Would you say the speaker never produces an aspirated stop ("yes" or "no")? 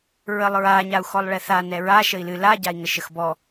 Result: yes